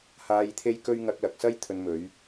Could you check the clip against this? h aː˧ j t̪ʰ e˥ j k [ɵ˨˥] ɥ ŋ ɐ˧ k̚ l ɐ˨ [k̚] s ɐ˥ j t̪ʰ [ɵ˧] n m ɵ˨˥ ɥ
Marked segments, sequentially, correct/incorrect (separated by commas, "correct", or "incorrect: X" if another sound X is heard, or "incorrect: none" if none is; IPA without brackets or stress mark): incorrect: ɵ˥, correct, correct